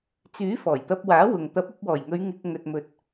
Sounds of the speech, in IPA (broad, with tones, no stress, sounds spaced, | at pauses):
t͡s yː˨˥ f ɔː˨˩ j t̪ ɐ˧ p̚ w aː˨˥ w ʊ˨ ŋ t̪ ɐ˨˥ p̚ ɐ˧ p̚ w ɔː˨˩ j ŋ ɵ˨˧ ɥ ŋ ɪ˧ k̚ ŋ ɵ˨ t̚ m ɵ˨ t̚